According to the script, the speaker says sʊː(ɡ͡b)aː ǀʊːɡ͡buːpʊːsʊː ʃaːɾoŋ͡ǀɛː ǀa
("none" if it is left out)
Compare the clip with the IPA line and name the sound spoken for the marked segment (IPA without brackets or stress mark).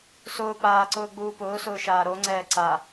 k͡p